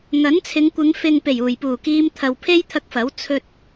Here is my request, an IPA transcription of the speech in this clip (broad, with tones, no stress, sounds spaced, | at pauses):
ŋ ɐ˨˥ n t͡sʰ ɪ˨˧ ŋ kʷ ɪ˨˧ ŋ f ɪ˨ ŋ p e˨˩ j uː˨˩ j p uː˨˩ k iː˧ m t̪ʰ ɐ˨ w pʰ e˥ j t̪ʰ ɐ˧ k̚ f ɐ˨˥ w t͡sʰ ɵ˧ t̚